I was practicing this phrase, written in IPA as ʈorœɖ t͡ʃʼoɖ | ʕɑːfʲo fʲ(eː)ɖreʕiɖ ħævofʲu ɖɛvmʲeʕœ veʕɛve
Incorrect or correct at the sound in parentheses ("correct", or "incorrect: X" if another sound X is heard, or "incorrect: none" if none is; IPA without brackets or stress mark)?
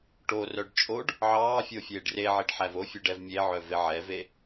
correct